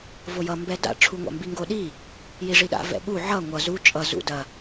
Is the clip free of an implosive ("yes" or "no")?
no